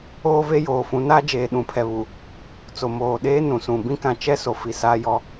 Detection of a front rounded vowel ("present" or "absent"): absent